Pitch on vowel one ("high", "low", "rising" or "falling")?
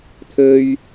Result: high